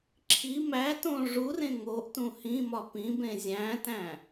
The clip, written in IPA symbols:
ǁʰ i m æ t õ ʐ u r ẽ ŋ o ʔ t ũ h ĩ m ɒ p ĩ b ẽ zʲ æ̃ t æ̃

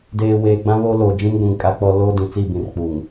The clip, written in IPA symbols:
d eː˨ w eː˨ ɡ͡b ã˦ β o˦ l oː˨ d͡ʒ ĩ˦ m ɡʷ ũ˨ ŋ kʼ a˦ k͡p ɔ˦ l oː˦ d ĩ˨ t͡s i˦˨ b ĩ˨ r k͡p u˨ ŋ

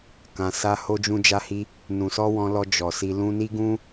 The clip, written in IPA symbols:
k ã˨ s a˧ h o˧ d͡ʒ ũ˧ d͡ʒ a˧ h i˧ | n ũ˨ s ɔ˧ w ɔ̃˧ l ɔ˧ d͡ʒ ɔ˨ s i˧ l ũ˧ n i˦ ɡ ũ˦

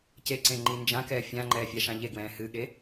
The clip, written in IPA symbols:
c e ǀ ẽ ŋ͡ǃ i n d͡ʒ ã k ɛː fʲ ã ŋ͡ǃ ɛː fʲ a ʃ ã ʎ e ɡ w ɛ̃ː h ɨ ɠ e

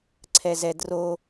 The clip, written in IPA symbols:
ǀʰ ɛ z ɛ d r o

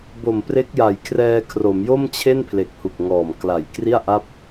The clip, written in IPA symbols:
b o˨˩ m p r e˦˥ k̚ j a˨˩ j kʰ r ɛː˧ kʰ r o˩˦ m j o˥˩ m t͡ɕʰ e˥˩ n pʰ l e˨˩ k̚ h u˨˩ k̚ ŋ ɔː˨˩ m k l a˨˩ j k r i˥˩ a̯ ʔ a˥˩ p̚

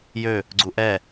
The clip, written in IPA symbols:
j ø | ɡ͡ǀ u ʔ ɛ

